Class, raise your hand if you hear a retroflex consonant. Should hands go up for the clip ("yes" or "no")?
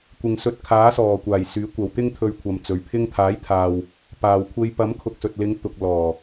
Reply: no